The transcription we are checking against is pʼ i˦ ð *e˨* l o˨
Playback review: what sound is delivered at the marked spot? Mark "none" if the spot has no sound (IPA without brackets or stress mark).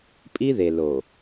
e˨